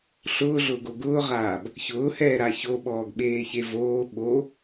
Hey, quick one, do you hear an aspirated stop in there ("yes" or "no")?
no